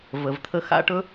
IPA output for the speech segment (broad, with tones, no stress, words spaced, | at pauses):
və˨vt̪ʰə˧ xa̰˦ʈɵ˦